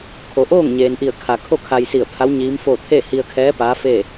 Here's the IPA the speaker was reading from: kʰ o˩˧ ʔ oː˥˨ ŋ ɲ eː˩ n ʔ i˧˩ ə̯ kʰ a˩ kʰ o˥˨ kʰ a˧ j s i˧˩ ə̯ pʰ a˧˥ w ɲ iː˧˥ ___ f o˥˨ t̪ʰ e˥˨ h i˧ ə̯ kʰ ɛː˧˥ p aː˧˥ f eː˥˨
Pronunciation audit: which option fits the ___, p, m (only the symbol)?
m